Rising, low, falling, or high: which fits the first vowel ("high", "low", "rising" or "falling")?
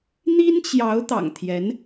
high